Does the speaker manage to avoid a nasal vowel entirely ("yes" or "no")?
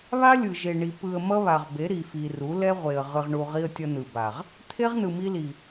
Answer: yes